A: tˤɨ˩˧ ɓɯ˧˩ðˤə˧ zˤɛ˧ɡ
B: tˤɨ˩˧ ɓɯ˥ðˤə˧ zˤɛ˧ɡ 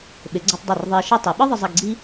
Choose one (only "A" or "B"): B